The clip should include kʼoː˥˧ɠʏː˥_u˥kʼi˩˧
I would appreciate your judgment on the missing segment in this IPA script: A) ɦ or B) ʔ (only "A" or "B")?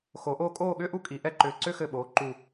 B